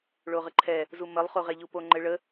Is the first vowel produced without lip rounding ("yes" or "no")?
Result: no